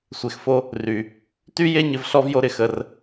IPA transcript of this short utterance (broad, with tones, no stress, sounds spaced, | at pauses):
sʷ e˨ x f o˦ | r y˨ | t y˦ j e˦ ɲ ɪ˧ v ɬ ɔ˦ v j o˦ ɾ ɪ˧ x ə˧ r